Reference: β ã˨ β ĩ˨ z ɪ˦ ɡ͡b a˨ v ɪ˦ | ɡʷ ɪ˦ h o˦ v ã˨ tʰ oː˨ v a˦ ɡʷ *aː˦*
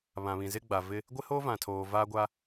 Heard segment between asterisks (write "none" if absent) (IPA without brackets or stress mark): a˦